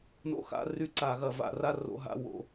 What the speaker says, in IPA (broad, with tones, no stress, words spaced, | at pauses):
no̰˧˥˧xa̰˧˥˧ry˧˥˧ǀa˧˩˧ ɣɐ˧˩˧va̰˧˩˧ra˥˧ ro̰˥˧ɦa̰˥˧wo̰˧˩˧